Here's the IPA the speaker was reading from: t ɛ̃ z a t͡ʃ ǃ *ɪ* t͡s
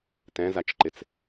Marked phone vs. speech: correct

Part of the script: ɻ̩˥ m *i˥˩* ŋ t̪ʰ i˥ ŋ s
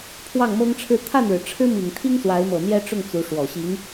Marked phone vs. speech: incorrect: i˨˩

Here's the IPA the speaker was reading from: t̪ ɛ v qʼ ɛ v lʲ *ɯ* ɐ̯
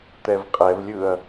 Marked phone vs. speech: correct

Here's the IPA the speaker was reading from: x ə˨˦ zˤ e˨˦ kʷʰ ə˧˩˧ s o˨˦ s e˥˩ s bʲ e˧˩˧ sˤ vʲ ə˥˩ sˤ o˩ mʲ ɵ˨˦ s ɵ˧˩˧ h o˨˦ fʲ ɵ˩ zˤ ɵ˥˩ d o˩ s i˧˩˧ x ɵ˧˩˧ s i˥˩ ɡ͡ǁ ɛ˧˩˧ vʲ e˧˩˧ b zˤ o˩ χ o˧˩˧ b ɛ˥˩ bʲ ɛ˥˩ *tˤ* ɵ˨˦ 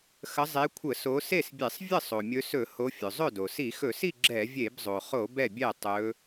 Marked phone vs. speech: correct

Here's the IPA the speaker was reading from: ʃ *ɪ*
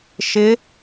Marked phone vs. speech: correct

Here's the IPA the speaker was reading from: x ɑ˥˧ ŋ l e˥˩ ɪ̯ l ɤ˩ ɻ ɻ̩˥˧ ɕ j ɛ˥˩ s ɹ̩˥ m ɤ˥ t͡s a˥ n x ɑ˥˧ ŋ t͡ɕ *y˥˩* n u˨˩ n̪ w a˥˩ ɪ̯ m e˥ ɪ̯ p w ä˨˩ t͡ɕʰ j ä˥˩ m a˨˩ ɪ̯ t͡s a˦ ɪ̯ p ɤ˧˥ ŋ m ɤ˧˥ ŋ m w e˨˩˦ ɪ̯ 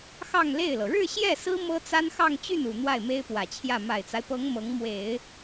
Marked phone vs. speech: correct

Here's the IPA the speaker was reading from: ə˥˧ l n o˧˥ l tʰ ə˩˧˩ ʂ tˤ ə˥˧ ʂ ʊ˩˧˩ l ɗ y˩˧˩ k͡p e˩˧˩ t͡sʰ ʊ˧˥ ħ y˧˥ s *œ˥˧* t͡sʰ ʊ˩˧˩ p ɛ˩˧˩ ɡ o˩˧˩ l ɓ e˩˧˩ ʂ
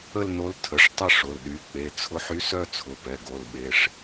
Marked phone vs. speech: correct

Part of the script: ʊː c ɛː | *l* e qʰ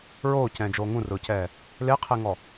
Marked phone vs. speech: correct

